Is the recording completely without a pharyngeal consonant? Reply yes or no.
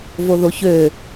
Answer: yes